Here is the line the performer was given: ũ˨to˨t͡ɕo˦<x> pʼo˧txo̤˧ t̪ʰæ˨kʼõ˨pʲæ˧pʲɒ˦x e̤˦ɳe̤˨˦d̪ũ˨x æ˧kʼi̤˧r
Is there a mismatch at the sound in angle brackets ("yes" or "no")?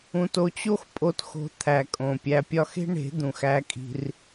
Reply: no